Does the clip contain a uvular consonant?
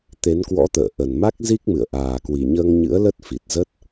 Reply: no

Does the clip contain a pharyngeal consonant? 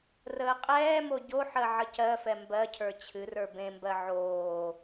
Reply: yes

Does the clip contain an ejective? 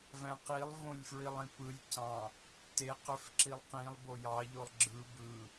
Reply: no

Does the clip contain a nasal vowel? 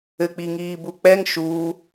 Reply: no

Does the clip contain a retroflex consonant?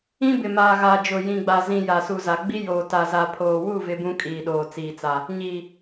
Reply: no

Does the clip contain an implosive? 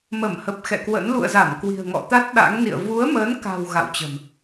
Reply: yes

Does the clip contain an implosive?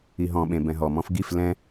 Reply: yes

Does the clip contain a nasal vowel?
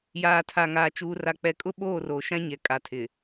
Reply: yes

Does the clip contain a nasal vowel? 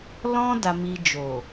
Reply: yes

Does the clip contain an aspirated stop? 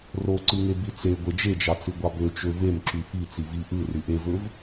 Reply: no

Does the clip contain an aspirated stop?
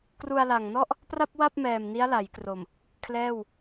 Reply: yes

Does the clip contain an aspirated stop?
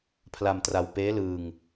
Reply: yes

